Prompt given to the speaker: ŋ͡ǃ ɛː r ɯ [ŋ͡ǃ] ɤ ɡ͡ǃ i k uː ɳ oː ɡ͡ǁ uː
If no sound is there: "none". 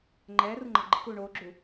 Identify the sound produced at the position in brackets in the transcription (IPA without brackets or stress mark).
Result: ŋ͡ǃ